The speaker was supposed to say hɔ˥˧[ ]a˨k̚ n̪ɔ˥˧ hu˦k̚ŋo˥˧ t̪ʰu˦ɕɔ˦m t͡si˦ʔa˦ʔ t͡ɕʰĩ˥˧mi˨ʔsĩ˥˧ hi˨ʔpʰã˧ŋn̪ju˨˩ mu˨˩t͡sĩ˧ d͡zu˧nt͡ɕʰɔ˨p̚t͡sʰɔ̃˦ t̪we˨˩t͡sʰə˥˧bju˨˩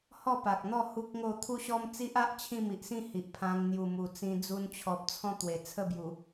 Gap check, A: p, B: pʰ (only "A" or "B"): A